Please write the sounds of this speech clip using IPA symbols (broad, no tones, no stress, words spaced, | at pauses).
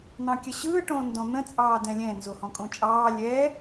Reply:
n̪ɑ̃kʲəɕɯː ʈõndɔ̃n̪ə̃ t͡sʼɑːdɛ̃lʲɛ̃ nzohɔ̃kʼõt͡ʃʼɑː lʲɛ